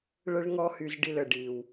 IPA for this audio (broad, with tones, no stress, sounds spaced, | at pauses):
ɭ ə˦ ɭ ŋ ɔ˦ h y˧ z ɖ i˧ l ə˨ ɖ iː˨ w